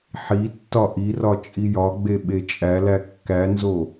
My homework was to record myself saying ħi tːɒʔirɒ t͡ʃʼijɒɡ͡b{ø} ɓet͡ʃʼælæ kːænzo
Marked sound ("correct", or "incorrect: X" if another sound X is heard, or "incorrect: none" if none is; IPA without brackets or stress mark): incorrect: e